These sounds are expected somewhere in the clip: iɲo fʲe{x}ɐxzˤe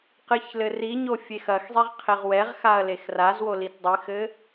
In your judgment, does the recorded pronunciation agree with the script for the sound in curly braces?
yes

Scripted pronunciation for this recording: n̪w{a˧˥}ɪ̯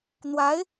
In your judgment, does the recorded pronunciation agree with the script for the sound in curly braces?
yes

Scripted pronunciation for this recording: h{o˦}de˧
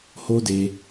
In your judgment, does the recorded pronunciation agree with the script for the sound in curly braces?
yes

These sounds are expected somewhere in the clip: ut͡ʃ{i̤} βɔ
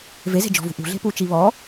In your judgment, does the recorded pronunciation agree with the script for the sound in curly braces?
no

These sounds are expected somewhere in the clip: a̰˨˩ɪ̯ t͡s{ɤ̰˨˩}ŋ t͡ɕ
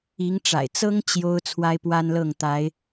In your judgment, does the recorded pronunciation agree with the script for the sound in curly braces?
no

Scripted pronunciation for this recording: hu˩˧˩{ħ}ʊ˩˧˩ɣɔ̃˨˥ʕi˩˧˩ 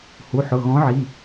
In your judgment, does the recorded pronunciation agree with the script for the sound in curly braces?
yes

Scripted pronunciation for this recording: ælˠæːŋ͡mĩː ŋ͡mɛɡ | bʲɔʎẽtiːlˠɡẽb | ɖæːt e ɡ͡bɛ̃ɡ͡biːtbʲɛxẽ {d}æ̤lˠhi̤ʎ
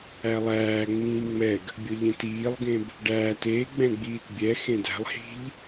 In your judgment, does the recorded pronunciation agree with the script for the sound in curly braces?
yes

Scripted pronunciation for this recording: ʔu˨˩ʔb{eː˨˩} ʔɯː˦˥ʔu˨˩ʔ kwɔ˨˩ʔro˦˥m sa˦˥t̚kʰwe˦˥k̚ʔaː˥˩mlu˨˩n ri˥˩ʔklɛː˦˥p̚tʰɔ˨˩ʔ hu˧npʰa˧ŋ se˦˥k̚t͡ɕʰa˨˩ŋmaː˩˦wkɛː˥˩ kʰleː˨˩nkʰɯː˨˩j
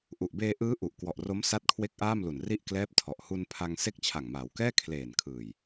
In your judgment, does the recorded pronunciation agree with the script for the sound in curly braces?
no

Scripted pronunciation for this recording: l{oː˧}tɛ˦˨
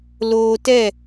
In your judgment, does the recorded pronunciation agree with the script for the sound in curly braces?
yes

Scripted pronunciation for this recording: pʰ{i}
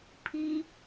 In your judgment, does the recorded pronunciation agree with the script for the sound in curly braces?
yes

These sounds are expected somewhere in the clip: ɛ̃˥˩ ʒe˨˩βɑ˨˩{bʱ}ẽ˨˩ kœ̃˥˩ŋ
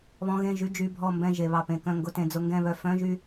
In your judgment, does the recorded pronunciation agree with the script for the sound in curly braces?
no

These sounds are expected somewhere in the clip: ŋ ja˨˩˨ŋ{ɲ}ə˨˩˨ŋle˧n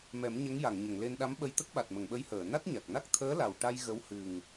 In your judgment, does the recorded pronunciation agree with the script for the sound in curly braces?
yes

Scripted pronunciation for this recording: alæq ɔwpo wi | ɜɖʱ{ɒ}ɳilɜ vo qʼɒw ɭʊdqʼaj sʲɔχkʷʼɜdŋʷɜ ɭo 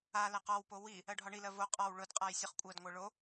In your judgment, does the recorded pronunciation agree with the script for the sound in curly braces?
yes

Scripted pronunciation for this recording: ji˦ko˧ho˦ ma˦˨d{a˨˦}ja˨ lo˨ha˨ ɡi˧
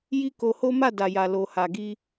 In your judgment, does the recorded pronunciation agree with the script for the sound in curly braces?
no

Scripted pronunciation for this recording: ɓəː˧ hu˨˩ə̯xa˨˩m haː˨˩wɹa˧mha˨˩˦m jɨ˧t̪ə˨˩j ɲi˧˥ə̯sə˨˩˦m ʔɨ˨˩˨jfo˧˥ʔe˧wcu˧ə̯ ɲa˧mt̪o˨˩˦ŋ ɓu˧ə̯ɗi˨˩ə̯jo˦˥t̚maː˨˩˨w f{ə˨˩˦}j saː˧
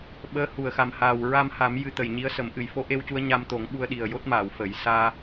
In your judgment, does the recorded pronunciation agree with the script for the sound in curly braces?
yes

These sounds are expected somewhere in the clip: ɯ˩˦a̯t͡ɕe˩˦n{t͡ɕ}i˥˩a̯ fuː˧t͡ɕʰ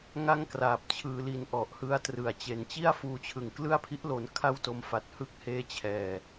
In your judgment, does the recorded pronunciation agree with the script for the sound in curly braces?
yes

